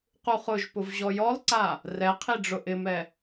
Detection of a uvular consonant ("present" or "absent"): present